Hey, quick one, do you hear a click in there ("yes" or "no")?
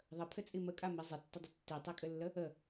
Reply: no